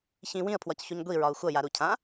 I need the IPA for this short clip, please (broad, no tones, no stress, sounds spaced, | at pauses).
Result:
ç ĩ w ĩ ə̯ pʰ w ɒ c ç u ɲ ɡʷ i ɹ ɒ ʊ̯ xʷ ʌ j a ɾ u cʰ ã